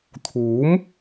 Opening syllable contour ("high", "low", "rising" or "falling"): rising